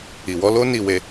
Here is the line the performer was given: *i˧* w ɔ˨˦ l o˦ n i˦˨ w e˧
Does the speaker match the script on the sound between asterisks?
no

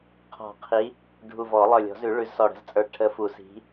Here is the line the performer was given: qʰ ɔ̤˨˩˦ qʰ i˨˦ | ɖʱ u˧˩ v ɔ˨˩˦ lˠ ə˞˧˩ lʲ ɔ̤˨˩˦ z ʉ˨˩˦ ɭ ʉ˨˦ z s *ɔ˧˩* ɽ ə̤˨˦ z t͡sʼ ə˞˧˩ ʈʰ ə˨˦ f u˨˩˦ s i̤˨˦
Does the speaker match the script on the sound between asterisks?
yes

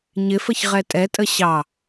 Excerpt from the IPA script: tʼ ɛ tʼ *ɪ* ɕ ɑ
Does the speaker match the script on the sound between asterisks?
no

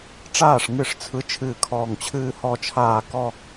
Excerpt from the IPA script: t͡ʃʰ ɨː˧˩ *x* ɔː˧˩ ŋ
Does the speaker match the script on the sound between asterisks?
no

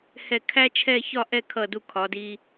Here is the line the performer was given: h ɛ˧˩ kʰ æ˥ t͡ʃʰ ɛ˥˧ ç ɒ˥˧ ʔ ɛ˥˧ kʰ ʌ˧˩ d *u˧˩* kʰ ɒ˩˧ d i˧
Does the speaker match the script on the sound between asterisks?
yes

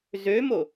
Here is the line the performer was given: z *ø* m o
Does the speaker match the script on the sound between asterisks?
yes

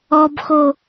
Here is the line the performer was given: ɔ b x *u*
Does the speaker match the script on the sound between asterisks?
no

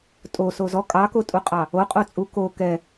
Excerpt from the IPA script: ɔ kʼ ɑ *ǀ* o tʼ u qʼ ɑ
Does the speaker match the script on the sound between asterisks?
no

